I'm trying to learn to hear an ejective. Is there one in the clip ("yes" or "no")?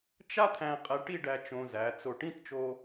yes